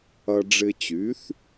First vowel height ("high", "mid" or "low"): low